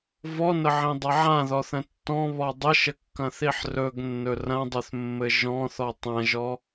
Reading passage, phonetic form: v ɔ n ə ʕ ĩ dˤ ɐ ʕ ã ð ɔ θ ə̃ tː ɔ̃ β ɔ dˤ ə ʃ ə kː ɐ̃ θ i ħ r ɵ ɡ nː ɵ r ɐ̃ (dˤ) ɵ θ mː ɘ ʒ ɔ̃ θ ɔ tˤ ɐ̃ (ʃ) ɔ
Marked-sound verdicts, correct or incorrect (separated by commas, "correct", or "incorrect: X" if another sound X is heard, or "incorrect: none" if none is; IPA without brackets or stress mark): correct, incorrect: ʒ